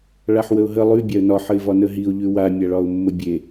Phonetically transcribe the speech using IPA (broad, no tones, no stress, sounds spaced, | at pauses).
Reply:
ɭ a ħ w ə ʊ̯ ɦ ə lˠ ʉ bʲ a ə̯ n ɒ ħ ə ɪ̯ v ɒ n ə ɦ i ʊ̯ ʎ ʉ w a mʲ a ɭ ɒ ʊ̯ mː ə bʲ e